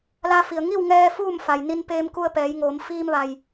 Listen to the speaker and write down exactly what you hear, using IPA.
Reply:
la˧fi˩ə̯ŋi˥˨w ŋɛː˧ fuː˥˨mfa˩jni˧n peː˧mku˧ə̯pɛː˩˧jŋoː˩˧m fiː˧mʋa˩j

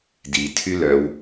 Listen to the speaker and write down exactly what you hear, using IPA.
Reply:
di tʰylœw

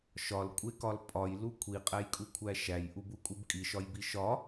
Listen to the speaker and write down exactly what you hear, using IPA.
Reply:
ʃɒlkʷʼekɒl pʼɒjlu kʷʰiqʼæjkʼukʷʰæ ʃæjʔubukʼub kʼiʃɒjbi ʃɒ

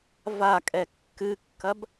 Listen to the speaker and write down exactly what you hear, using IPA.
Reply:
vakʼɛ kːɨkːɐb

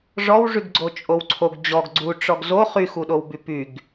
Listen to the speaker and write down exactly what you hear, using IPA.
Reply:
ʐɔwʐyɡɡ͡ǀo t͡ʃʼowǀʰoɡ d͡ʑɔɡ ɡ͡ǀu ʈ͡ʂɔɡzo χyxuɗowby pyɡ

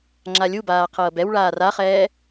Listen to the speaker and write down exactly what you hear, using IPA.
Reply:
ŋ͡ǁalʲubaː qʰɤːbɛwɭaːr aχɛː

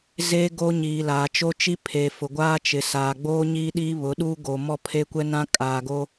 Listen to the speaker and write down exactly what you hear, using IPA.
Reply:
ze˦ɡo˦ɲiː˨ laː˨t͡ʃo˦t͡ʃi˦ pʰe˨fʊ˨ɡʷaː˦t͡ʃɪ˨ saː˨ɡ͡boː˦ ɲiː˦ɗiː˦βʊ˨˦ɗu˦ ɡo˨ mɔ˦pʰe˦kʷɛ˦nã˦ kʼaː˨ɡo˦

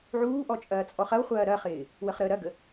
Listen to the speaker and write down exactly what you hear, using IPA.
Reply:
ʕuːʔɔ t͡ʃʼɐːt͡sʼɔχɐwχʷɐː ɾɐχɪː | wəχɾəːɾɐɡə

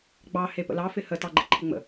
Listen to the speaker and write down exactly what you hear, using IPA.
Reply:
ɡ͡bɑ hepə̰lɑ fɪhə tɑɡ͡ǃɪǃʰɪŋ͡mə̰

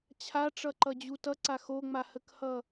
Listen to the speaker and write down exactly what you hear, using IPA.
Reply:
t͡ɕʰaʈ͡ʂʌǃʌd͡ʑu tʌǀa xoŋ͡mahəkhʌ

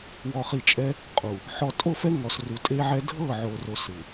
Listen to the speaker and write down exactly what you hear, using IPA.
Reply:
wɔ˨χi˨t͡ʃʼɛ˦ | qʼu˨ | ħɔ˨tʼo˦˨fɛ˦ ŋɔ˨sru˨ tʼe˦ʕɛ˦ dʱɤ˦˨ʕo˨ro˨ sɯ˨

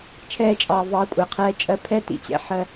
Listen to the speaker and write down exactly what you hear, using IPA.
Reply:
t͡ʃʰɛː˦t͡ʃʼɑː˧ vɑː˧kʷʼɪː˨qʰɛː˧ t͡ʃʼɜ˧pʰɛ˦ tḭ˦˨t͡ɕɛ̰˦ħɜ˧

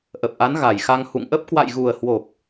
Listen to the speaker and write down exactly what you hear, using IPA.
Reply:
ʔə˨˩p̚ʔa˨˦n ɣa˨˩jxa˧ŋ hṵ˧˨ŋʔə˦˥p̚ kwa̰˧˨jɣu˨˩ə̯hwo˨˩p̚

